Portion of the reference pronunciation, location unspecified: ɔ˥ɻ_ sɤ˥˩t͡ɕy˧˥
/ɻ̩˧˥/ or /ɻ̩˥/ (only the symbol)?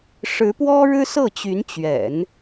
ɻ̩˥